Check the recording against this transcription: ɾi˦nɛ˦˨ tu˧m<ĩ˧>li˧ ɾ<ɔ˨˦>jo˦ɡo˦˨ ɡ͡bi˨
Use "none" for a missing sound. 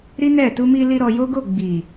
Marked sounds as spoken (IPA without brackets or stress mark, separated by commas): i˧, ɔ˧